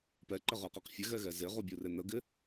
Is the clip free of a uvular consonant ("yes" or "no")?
no